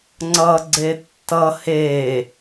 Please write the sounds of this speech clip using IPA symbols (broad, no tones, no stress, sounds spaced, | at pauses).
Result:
ŋ͡ǀ ʌ ɡ͡ǀ e tː ʌ h e